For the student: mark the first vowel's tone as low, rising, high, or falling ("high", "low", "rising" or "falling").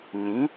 rising